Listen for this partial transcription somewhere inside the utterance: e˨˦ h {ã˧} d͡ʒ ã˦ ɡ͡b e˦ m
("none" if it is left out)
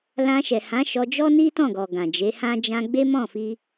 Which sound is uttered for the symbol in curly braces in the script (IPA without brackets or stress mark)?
ã˦